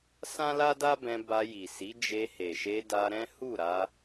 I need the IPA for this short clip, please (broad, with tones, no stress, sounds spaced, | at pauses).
s ã˦ l a˦ d a˦ b ɛ̃˧ b a˧ j i˨ s i˨˦ d͡ʒ e˧ h e˨ ʃ e˧ d a˧ ɾ ɛ̃˦ h u˦˨ ɾ a˧